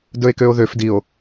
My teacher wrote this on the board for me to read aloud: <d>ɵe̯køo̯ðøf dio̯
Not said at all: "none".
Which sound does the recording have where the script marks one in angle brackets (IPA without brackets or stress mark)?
d